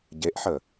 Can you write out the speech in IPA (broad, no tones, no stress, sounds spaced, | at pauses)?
ɟ e ʔ ħ ə